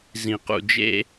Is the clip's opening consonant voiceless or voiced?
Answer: voiced